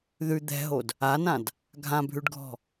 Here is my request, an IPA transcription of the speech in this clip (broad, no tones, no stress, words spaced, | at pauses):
ðʉ d̪ɛ̤ɦod | anãd | ɡʱãbʱʉɖɡʱɔ̤